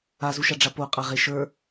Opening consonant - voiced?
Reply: yes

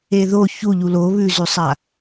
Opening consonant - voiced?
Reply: yes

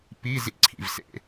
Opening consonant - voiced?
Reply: no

